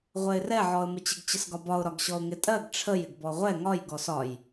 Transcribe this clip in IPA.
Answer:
ʁʷ ɛ ɪ̯ r ɛ ʕ ɔ ə̯ m ɪ t͡ɕ ɪ ɡ t͡ɕ ə s ɡ ɒ b ɒ ʊ̯ ɾ ɒ ɡ ɕ ɔ ʊ̯ ŋ ɪ tʼ ɜ ɡ ʈ͡ʂʰ ə j ɪ ɡ b ɔ ʁʷ ɛ ŋ ɒ j ɡ ɔ s ɒ j

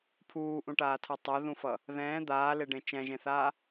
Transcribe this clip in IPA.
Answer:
pʰ uː ʔ ũ ʈ aː tʰ ʌ tˤ o ð ũ f ʌ | ð ɛ̃ː d̪ aː l e ɖ ẽ t͡ʃ ɛ̃ ʒ ẽ θ aː

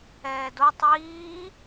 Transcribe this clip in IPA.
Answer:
ɛː d o tˤ iː

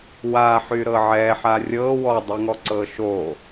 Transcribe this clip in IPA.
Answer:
w a ħ y ɾ ɤ ʕ ɛ ħ a rʲ ɤ w ɔ dˤ ɛ ŋ ɔ ǀ ɤ ʃ o

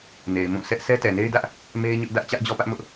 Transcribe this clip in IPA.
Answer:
n e˨ ɪ̯ m ũ˦˨ sʰ ɛ˦ ʔ s ɛ˦ t ɛ˨ n e˦ ɪ̯ d ä˦ ʔ | m e˦ ɪ̯ ɲ ʊ˦ ʔ d ä˦ ʔ t͡ɕ ä˦ ʔ d͡ʑ ɔ˦ p ä˦ ʔ m ʊ˦ ʔ

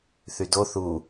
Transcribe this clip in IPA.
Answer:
θ y d o θ u

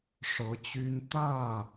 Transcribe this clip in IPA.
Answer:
ʂ ɤ˧˥ t͡ɕ y˥ n t̪ ä˥˩

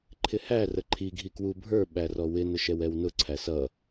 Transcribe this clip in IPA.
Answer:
ǃʰ ɪ h æ r ə ǃʰ i ɡʱ i k w u bʱ ə˞ ɓ æ r ɔ w ɪ n ʊ ʃ ɛ w ɛ w n ʊ ǀʰ æ s ʌ

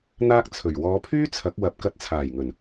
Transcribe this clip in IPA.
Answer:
n̪ aː˥ k̚ t͡sʰ ɵ˨˩ ɥ w ɔː˨˧ pʰ yː˥ t͡sʰ ɐ˨˥ k̚ w ɐ˨˥ p̚ k ɐ˧ t̚ t͡sʰ aː˨˩ j ŋ ɵ˨˩ n

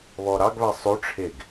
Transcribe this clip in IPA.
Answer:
β ɔ ɾ ɑ ɡ β æ sˤ ʉ ʈ͡ʂʰ e ɡ

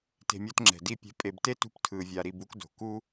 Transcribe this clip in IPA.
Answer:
t e̤˨ mʲ o˦ t ŋ͡ǁ ɛ̤˨ d i˦˨ pʲ ɛ̤˧ pʼ e˨ b t e˦ t ṳ˧ p tʰ ɯ˨ vʲ a˨ ɾ i˨ b u˧ k d o̤˨ k u˦

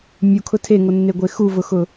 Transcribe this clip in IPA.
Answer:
mʲ u kʰ ʊ tʰ e ŋ o nː e ɡʷ e x u v ʊ x ʊ

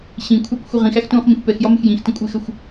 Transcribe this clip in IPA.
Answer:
ɕ ĩ kʷʰ ɑ k xʷ ə ʁ ĩ x æ x t ũː χ m ĩ xʷ p ɛ x j ɒ m ɪ x j ĩ x t ə̃ kʷʼ ɪː x ə xʷ

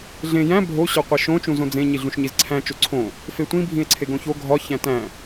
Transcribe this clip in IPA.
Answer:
ɮ ẽ j æ̃ bʱ o ɕ ɒ qʷ e ʃ õ t͡ʃ ũ z õ d͡z ẽ ɲ i ɮ ũ ʃ ɲ i z ǀʰ æ̃ t͡ʃ o ǀʰ õ | f e tʷ ĩ bʱ ĩ e̯ ǀʰ e ɡ õ ç o ɡʱ ɒ ç æ̃ t æ̃

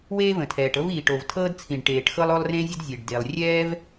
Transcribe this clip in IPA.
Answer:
w eː˥ v ə̃˩ tʰ ɛː˩ ʈ ɤ˥ v iː˩ ʈ o˩ v tʰ ɤː˥ d t͡sʰ ĩ˩ ɖ ʈ eː˩ ʈ x ɤ˥ lˠ o˥ lˠ r ẽ˥ zʲ ə˥ d zʲ e˩ ɖ d e˩ lˠ rʲ ɛː˥ v

